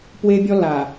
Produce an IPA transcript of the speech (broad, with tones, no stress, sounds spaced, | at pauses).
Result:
p w e˦ bʲ ɔ˦ l a˨